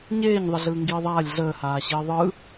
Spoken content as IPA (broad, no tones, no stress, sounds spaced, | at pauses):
ɲ eː ɲ ðˤ ə ɮ ɯː ŋ ɡ iː ðˤ aː lʲ ɮ əː h aː ɕ iː ðˤ ɯ